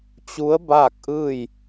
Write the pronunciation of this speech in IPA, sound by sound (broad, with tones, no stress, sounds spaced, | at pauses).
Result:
t͡ɕ u˧˥ ə̯ b aː˥˨ k̚ ʔ ɯː˥˨ j